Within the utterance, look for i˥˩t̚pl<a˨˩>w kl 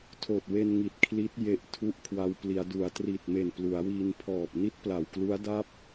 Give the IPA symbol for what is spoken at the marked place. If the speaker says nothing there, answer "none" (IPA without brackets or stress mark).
a˨˩